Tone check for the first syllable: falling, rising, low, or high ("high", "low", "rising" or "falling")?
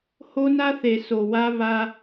high